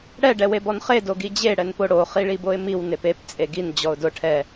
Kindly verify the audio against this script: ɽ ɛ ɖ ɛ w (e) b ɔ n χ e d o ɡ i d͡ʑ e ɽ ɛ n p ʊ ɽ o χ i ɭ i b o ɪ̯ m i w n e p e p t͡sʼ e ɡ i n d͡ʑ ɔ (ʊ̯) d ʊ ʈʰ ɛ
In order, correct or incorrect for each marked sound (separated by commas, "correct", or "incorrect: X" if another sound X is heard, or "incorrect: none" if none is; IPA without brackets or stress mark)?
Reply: correct, correct